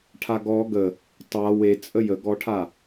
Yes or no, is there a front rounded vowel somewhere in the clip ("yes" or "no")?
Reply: no